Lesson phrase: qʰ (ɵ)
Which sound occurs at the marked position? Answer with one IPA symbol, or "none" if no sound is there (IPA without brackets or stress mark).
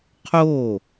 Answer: o